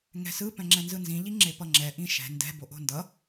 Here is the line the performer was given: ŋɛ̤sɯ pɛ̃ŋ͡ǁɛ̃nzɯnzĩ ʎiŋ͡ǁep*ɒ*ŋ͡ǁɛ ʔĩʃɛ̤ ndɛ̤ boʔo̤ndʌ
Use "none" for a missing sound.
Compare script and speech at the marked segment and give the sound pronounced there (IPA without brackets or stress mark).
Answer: ʌ